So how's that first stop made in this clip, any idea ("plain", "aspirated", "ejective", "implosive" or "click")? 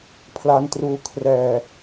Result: aspirated